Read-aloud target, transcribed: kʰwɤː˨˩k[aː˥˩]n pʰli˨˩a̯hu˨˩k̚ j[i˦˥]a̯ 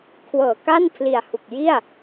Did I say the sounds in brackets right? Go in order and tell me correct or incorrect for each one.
incorrect: a˥˩, incorrect: i˥˩

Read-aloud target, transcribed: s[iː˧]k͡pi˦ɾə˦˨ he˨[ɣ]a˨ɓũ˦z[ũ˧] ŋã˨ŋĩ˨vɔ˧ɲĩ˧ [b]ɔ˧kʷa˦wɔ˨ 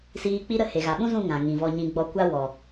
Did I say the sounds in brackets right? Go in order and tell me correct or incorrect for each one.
correct, correct, incorrect: ũ˦˨, incorrect: ɡ͡b

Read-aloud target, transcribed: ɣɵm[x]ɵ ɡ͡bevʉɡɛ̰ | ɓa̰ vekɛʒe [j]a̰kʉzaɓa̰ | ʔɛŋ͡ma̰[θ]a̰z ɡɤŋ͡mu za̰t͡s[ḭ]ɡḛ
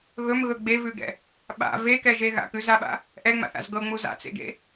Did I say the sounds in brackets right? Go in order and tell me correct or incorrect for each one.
incorrect: ɣ, incorrect: ɣ, correct, incorrect: ḛ

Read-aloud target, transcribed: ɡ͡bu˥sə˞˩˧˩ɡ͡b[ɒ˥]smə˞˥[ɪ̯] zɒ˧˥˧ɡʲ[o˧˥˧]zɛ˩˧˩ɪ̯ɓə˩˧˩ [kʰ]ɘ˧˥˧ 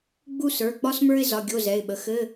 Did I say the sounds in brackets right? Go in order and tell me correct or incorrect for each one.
correct, correct, correct, incorrect: x

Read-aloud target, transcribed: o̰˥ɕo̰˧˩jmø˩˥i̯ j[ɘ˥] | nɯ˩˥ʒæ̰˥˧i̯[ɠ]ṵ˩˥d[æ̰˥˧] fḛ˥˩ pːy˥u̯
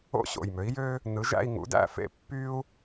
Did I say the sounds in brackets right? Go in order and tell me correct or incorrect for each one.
incorrect: ø˥, incorrect: ŋ, correct

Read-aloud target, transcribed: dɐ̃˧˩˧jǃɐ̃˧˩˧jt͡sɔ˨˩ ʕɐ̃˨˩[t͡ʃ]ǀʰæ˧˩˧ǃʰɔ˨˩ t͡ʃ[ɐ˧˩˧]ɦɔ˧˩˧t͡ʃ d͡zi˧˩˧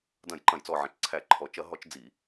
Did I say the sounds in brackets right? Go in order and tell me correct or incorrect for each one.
correct, correct

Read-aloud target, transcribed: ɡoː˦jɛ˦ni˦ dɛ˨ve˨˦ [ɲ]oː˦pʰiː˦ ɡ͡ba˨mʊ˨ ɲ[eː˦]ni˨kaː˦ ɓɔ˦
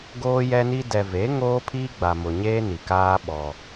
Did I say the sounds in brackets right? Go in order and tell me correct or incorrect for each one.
incorrect: ŋ, correct

